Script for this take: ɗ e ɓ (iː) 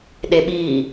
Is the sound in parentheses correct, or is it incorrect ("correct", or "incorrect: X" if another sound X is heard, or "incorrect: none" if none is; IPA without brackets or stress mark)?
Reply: correct